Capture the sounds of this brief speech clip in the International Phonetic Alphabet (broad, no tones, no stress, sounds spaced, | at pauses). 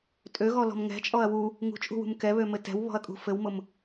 tʼ ø ɣ ɔ l ɔ̤ m ŋ ɛ̤ t͡ʃʼ ɔ ɐ̯ w u | ŋ ṳ t͡ʃʼ ṳ w ṳ m k ɛ β ø m ɘ t ɛ̤ w β ɔ̤ ɐ̯ kʼ ṳ f ɘ w m ʊ m